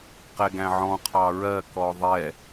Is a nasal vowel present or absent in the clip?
present